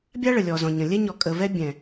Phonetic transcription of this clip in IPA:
bʲ a˦ ɭ ə˨ lʲ ɔ˨ z ɔ̃˨ ɲ ə̃˨ lʲ ɛ˦ ɲ ɔ˨ kʼ ə˨ v ɛ˦ bʲ ɛ̃˨

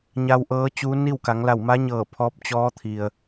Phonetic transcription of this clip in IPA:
ɲ a˧ w ʔ ɤː˧˥ t͡ɕ uː˧˥ n i˥˨ w k a˩˧ ŋ l a˧˩ w m a˧˥ ɲ ɤː˧˩ pʰ ɔː˧˥ p̚ t͡ɕ ɔː˧˥ t̪ʰ i˩ ə̯

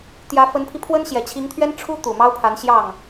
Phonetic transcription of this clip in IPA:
t̪ j ä˧˥ f ə˧˥ n pʰ i˧ pʰ w ə˥ n ɕ j ɛ˨˩ t͡ɕʰ i˧˥ ŋ t̪ʰ ɥ ɛ˥ n ʈ͡ʂʰ u˥ t̪ u˨˩ m ɑ˥ ʊ̯ pʰ a˧˥ n ɕ j ɑ˥˩ ŋ

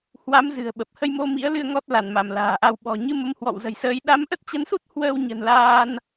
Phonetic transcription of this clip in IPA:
h w a˨˦ m z ɨ̤˨˩ ə̯ ɓ ə˨˩ p̚ h ə˧ j m o˧ m ḭ˧˥ ə̯ l ɨ˧ ə̯ ŋ ɔ˦˥ t̚ l a˧˩ n m a˧˩ m l a̤ː˨˩ ʔ a˧ w ɓ ɔ̤˨˩ ɲ ɨ˧ m ə˨˦ m h w ɔ̰˧˨ w z ə̤˨˩ j s əː˨˦ j ɗ a˨˦ m ʔ ə˦˥ t̚ t͡ɕ ə˨˦ n s u˦˥ t̚ h w əː˧ w ɲ ə̤˨˩ n l aː˧ n

